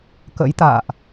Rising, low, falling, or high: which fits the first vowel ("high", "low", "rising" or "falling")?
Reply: rising